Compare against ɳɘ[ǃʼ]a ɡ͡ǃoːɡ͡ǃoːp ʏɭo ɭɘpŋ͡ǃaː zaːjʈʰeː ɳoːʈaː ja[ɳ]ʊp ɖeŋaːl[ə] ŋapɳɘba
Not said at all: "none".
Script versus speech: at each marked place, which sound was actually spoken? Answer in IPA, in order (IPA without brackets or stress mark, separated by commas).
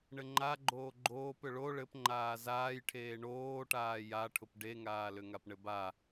ŋ͡ǃ, ʈʰ, ʏ